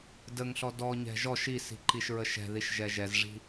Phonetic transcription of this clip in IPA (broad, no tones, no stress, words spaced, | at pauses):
dəŋɬɔ dɔɲɛ̤ ʒɔʃ isi̤ ǃiʃɹəʃɛ̤ðiʃ ʒɛʒɛzʐi̤